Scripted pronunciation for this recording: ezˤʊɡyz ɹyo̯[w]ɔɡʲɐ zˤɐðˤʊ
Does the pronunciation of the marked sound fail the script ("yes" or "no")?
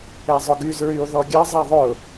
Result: yes